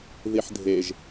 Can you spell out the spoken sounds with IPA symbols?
ð i ħ dʱ e ʒ

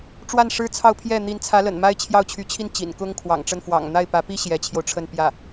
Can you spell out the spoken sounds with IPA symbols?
ʈ͡ʂ w a˥˩ n ʂ ɻ̩˥ t͡sʰ ɑ˥˧ ʊ̯ pʰ j ɛ˥˩ n̪ i˧˥ n t͡sʰ ä˧˥ l ə̰˨˩ n m a˥ ɪ̯ t͡ɕʰ j ɑ˥˩ ʊ̯ t͡ɕʰ y˧˥ t͡ɕʰ i˥˩ n t͡ɕ ḭ˨˩ n k ʊ˥ ŋ kʰ w ɑ̰˨˩ ŋ ʈ͡ʂ ə˥˩ n f w ɑ̰˨˩ ŋ n̪ a˥˩ ɪ̯ p ä˧˥ p i˥ ɕ j ɛ˧˥ t͡ɕʰ j o˧ ʊ̯ ʈ͡ʂʰ ə˥˧ n p j ä˥˩

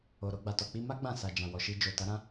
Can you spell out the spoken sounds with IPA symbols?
o˨ ɾ o˧ ɡ͡b a˨ t ɔ˨ k͡p i˧ m a˦ ɡ͡b ã˦˨ s a˨ d͡ʒ ã˨ w ɔ˨ ʃ i˧ d͡ʒ o˨ t a˨˦ ɾ ã˦

